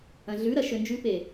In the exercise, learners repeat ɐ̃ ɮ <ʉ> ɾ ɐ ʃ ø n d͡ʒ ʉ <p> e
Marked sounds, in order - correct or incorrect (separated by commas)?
correct, correct